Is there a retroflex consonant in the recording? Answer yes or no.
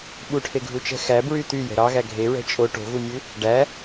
yes